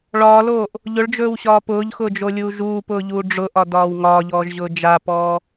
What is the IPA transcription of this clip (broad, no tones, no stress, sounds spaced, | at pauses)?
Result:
ɭ ɒː l oː ʔ | ʎ ʊ ɭ d͡ʒ ɵː w ɕ ɒː p ʊː ʎ x ʊː d͡ʒ o lʲ uː ʒ uː p ʊː ʎ uː ɖ͡ʐ ʊ ʔ ɒ d ɒː w ŋ ɒː ʎ ɔː ʒ ʑ ʊː d͡ʒ a p ɔː